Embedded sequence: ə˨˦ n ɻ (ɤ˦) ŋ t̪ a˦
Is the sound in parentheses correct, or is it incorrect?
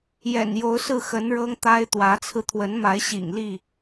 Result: correct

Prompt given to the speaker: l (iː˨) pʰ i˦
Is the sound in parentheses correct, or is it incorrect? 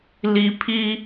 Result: incorrect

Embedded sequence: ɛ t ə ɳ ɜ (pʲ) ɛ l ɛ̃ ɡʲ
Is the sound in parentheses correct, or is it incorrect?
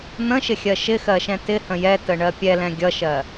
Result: correct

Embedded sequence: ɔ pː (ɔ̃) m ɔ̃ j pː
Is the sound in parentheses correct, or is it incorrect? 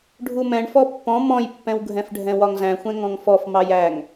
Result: correct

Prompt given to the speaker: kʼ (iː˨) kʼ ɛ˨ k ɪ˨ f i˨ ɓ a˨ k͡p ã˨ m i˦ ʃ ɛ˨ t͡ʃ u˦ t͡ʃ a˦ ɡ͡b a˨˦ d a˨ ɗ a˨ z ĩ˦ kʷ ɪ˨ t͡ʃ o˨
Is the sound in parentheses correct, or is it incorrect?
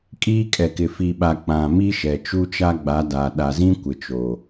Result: incorrect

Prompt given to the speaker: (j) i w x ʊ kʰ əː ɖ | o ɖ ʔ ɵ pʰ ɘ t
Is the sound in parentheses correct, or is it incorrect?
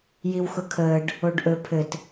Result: correct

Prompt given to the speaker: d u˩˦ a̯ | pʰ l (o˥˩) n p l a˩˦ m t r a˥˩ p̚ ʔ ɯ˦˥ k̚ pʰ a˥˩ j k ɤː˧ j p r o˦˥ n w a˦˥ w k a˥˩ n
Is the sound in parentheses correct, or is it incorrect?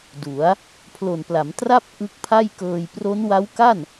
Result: incorrect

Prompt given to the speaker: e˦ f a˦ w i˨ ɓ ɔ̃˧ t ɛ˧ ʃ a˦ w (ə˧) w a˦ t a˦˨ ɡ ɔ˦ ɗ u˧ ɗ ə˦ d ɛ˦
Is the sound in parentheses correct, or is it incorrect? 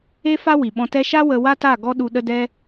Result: correct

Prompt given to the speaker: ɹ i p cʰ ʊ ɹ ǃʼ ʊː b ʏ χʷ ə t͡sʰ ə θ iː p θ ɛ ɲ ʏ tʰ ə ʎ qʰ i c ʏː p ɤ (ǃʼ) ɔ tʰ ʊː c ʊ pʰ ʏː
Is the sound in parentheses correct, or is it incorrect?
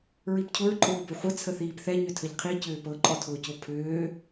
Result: correct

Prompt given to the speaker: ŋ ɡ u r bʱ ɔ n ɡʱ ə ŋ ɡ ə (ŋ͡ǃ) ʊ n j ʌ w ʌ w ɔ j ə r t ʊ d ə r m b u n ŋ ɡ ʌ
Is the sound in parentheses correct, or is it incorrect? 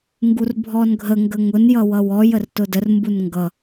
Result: incorrect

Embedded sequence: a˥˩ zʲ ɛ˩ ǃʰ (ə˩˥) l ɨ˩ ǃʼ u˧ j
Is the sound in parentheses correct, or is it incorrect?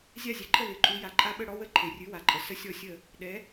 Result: incorrect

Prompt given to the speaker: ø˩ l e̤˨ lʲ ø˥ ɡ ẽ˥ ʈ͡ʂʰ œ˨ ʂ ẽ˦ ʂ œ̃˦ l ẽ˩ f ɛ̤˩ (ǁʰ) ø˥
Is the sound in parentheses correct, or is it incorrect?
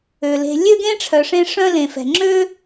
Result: incorrect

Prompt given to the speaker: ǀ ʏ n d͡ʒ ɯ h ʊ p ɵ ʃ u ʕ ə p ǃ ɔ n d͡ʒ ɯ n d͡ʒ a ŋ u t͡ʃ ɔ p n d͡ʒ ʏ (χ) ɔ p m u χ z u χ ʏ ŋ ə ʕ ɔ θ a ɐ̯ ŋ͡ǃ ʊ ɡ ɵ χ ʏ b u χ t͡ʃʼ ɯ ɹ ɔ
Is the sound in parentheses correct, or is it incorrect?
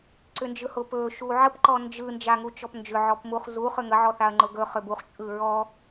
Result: incorrect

